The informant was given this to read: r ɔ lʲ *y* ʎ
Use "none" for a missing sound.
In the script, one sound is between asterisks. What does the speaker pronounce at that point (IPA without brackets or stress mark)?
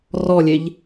e